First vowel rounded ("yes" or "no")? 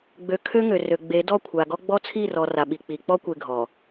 yes